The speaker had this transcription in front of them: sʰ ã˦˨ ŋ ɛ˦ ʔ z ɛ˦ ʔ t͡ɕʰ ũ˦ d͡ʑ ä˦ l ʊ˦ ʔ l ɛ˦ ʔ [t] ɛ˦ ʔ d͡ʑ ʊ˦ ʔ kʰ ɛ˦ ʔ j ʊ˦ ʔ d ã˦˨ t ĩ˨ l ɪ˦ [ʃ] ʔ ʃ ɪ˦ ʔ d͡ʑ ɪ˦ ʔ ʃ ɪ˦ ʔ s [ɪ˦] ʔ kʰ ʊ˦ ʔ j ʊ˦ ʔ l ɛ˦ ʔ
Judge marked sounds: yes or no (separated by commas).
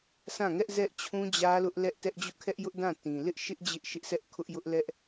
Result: yes, no, no